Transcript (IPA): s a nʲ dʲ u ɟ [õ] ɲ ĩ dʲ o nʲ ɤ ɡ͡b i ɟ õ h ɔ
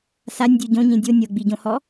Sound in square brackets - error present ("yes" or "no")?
no